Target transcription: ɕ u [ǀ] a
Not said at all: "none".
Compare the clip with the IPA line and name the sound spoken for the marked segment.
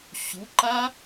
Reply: ǃ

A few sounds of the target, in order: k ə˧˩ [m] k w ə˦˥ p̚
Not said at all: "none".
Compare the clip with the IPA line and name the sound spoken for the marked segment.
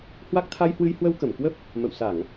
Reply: m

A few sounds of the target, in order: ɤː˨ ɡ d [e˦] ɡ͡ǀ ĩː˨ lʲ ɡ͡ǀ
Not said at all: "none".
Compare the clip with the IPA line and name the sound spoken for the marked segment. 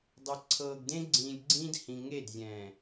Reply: ẽ˦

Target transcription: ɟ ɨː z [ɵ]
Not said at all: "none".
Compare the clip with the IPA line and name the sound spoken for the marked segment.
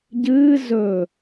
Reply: ɵ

